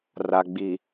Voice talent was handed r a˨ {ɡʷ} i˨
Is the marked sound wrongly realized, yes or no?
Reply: yes